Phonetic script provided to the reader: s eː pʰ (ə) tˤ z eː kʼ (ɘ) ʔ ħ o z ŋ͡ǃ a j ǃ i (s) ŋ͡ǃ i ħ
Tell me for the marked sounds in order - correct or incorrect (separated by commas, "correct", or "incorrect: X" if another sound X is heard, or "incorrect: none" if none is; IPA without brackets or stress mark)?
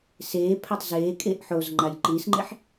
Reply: incorrect: a, incorrect: e, correct